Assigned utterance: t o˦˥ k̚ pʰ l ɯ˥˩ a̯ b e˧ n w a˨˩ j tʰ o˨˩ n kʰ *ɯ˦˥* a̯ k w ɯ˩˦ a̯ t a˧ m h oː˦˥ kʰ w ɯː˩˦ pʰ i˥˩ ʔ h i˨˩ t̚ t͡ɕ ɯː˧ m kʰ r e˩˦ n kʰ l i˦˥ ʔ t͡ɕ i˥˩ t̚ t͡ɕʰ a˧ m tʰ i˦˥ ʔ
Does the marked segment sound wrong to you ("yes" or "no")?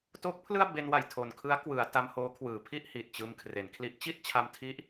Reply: no